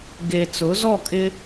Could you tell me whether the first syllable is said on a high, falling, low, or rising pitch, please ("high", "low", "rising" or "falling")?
low